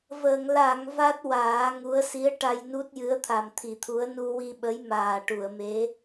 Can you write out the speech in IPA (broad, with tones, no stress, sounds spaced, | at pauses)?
v əː˨˩˨ ŋ l a˨˩˨ ŋ v a˦˥ t̚ w aː˨˩˦ ŋ u˧˥ ə̯ s i˧˥ ə̯ ʈ a˧ j n u˦˥ t̚ j ɨ˧˥ ə̯ t̪ʰ a˨˩ m t̪ʰ i˨˩˨ t̪ʰ u˧˥ ə̯ n u˧ w i˧ ɓ ə˧˥ j m aː˨˩ ʈ u˨˩˨ ə̯ m e˧˥